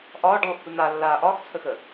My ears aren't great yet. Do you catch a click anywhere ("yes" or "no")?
no